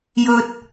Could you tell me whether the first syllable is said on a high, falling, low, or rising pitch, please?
high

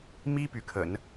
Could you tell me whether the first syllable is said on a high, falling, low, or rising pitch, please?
high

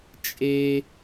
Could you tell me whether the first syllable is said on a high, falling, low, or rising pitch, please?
high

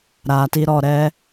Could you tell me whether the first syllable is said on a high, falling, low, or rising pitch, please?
low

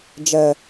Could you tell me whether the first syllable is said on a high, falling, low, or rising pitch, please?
high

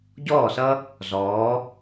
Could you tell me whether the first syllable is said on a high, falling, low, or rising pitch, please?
falling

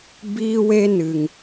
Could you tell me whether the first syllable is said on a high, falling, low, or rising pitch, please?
high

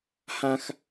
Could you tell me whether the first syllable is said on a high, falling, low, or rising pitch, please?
high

